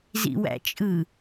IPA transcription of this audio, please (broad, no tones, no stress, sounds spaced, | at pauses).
z ḭ w æ̰ t͡ʃʼ ɯ